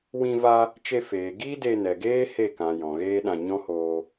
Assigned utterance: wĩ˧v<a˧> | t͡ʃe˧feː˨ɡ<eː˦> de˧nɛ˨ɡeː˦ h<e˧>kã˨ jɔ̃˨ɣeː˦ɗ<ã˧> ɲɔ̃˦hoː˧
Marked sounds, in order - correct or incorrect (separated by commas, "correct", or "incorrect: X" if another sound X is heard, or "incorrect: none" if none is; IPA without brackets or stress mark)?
correct, incorrect: iː˦, incorrect: e˦˨, correct